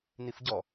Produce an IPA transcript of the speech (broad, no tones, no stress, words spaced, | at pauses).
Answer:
nifɟɔ